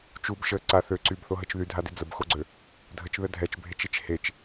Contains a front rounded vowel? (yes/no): yes